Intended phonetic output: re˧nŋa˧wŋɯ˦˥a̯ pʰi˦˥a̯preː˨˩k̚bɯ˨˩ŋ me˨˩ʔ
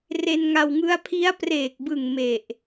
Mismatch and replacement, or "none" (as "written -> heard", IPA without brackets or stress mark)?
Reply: none